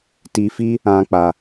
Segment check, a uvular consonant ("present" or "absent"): absent